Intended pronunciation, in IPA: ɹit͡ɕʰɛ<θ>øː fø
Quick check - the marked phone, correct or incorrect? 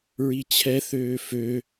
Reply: correct